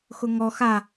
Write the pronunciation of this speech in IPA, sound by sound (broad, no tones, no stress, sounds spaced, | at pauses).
x ʊ ŋ ɔ x a